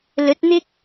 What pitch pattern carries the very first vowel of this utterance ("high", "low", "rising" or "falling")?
rising